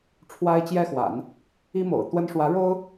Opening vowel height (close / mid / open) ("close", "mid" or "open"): open